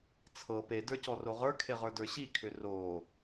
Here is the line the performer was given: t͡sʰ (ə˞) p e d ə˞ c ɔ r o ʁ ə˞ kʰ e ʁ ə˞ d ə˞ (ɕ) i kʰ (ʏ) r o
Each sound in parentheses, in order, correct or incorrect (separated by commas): incorrect, correct, correct